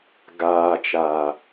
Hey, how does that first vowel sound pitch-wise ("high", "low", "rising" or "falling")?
low